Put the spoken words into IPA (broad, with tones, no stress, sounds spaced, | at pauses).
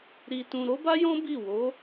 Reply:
ɾ i˧ t ũ˧ ɾ o˦ b a˦ j ɔ̃˦ b i˦˨ w o˨˦